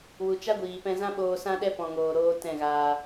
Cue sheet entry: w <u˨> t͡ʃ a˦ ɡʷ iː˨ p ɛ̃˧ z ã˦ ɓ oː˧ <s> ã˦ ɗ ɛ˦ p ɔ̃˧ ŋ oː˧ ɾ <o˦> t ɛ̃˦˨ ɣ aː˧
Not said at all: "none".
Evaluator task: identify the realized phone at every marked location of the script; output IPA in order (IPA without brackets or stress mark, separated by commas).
u˨, s, oː˦